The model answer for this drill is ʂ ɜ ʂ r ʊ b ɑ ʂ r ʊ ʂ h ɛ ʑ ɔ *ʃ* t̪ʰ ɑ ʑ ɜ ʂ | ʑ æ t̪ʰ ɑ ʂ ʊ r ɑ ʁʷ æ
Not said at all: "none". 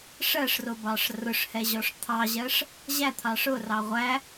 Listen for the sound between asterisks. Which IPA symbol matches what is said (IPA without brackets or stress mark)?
ʂ